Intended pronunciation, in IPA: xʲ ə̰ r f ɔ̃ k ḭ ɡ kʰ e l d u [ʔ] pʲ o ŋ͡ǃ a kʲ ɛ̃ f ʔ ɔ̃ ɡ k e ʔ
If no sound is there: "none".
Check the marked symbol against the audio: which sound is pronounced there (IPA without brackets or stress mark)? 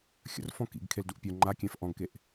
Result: ʔ